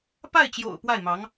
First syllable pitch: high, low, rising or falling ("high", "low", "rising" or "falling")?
falling